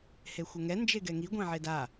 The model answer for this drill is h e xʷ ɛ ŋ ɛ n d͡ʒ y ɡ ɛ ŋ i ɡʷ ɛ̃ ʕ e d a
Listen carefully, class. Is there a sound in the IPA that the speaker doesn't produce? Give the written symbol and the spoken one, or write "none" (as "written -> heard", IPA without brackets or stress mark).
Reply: y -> e